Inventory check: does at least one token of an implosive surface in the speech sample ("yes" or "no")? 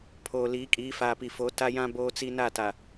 no